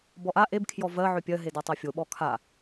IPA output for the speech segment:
b ɔ ʔ a ʔ e b kʰ j ɔ v ɜ ʕ ʏ pʲ ɜ ɦ e d a tˤ ɜ fʲ o ɓ ɔ kʰ a

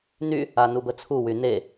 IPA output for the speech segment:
n y | a n u b ə t͡sʰ u w y n e

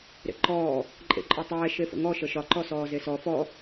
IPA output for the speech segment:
ɾ ḛ ǃ ɔː | ǃʼ ḛ ǃʼ ɒ tˤ ɛː ʃ e f ə̰ ŋ ɔ ʃ ə ʃ ɒ ǃ ɔ s ɔː z e s ɔ f ɔ

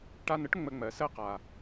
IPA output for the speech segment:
ʈ a˧ n ə˦ ʈ ŋ͡m ə˧ ŋ͡m ɜ˨ s ɜ˦ q a˨

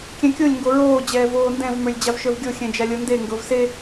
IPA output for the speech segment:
kʲ ɛ̃ kʲ o lʲ ŋ ɡ o ɹ oː d͡ʑ ɛː v oː n d ɛ̃ v m ə˞ lʲ d͡ʑ a v ʃ ə˞ v ɡʲ o xʲ ɛ̃ d͡ʒ a lʲ ɤ n d e ŋ ɡ ɤ v s e

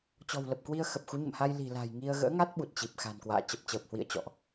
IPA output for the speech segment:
t͡ɕ ɔ̤˨˩ w l ə˨˩ p̚ k w i˧ ə̯ x ə˨˩ p̚ x u˨˦ ɲ ə̰˧˨ m h a˧ j l i̤˨˩ l a̤˨˩ j ŋ i˧ ə̯ ɣ ə̰ː˧˥ ŋ a˦˥ t̚ ɓ u˨˩ t̚ t͡ɕ i˨˩ p̚ x a̤˨˩ n k w a̰ː˧˨ t͡ɕ ə˨˩ p̚ t͡ɕ əː˨˩ p̚ h w ḭ˧˨ ə̯ t͡ɕ ɔ̰˧˨ ʔ

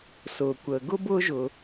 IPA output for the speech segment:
s ʊː˩ kʷ əː˩ ɡ ʊ˥ b ʊː˦ ʒ ʊ˩

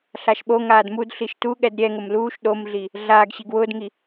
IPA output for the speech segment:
ɬ a ʃ ɓ o ŋ aː d m u d ɬ i ʃ t u ɠ ɛ d ɾʲ ɛ ŋ ʊ m l uː ʃ ɗ o m ɮ i | ɮ aː ɡ ɕ i ɡ w ʊː d ŋ i

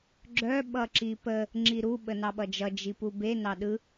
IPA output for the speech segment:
ɡ͡ǁ œ ɓ ʌ ǁ i p ə | ŋ͡ǁ i ɾ u ɓ ə n ɑ ɓ ʌ d͡ʒ ʌ d͡ʒ i p u b e n ɑ ɗ ɯ

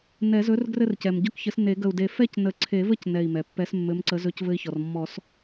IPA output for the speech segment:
n ɛ˨˩˦ z ɵ˨˥ r ɡ r ɘ˥˧ r c ɛ˩ m ɟ ɵ˥˧ k ç ɘ˨˥ s n e˨˩˦ ɡ ə˧˩ u̯ d e˧˩ f ɛ˥˧ c n ə˨˩˦ ǀʰ e˨˩˦ v ə˥˧ c n ɛ˧˩ i̯ m ɛ˩ pː ɛ˨˥ s mː ɘ˨˥ m ǀ ə˨˥ z ɵ˨˥ c v ɘ˧ i̯ ç ɔ˩ r mː ɔ˨˩˦ s

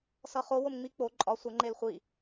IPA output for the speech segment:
s ʌ χ o w o m ŋ͡m i k͡p o ǃʼ ɒ sʷ ʌ ŋ͡ǃ e l χʷ i

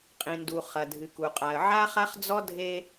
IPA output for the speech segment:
qʼ ĩ˨ n d u˨ χ ɐ˨ dʱ ɨ˨ k u˨ qʼ a˨ ə̯ ʕ a˦ χ a˦ χ d͡z ɔ˦ dʱ e˦

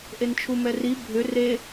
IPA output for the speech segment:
ʔ e n t͡ʃʰ u m ɛ r i bʱ ʏ r e

